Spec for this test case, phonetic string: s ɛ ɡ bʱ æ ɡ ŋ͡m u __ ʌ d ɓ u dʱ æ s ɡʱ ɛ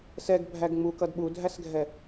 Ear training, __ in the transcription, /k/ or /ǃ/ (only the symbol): k